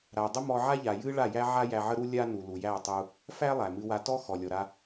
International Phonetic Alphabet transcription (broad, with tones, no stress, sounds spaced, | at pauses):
ɾ a˨ dˤ ə˦ m ɔ˧ ʕ a˦ ʎ a˨ j ɨ˦ ɭ a˦˨ j æ˦ ʕ a˦ j æ˧ ʕ ə˦ ɾ u˦ lʲ a˦ n u˨ l u˨ j æ˦˨ tˤ u˧ | f æ˦ lˠ æ˨ m ɨ˧ w a˧ t ɔ˦ x ɔ˨ lʲ ɔ˨ ɾ a˧